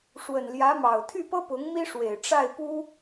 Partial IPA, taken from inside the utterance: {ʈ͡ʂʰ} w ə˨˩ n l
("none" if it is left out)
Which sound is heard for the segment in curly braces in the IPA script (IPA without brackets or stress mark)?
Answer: ʂ